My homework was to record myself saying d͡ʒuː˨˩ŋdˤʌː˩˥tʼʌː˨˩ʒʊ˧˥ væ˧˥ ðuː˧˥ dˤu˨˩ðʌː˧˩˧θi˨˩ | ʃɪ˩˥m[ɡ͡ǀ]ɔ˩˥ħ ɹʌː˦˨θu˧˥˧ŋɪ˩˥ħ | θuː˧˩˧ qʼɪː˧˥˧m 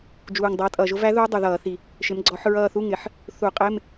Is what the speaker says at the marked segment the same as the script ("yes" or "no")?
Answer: yes